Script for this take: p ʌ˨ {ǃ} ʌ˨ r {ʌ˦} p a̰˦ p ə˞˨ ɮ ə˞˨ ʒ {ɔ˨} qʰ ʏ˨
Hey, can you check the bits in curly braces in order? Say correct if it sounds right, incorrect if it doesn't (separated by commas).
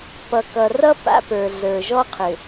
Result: incorrect, correct, incorrect